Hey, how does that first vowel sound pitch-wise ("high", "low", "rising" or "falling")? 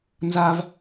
high